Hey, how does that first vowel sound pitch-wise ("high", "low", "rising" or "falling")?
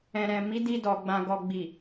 low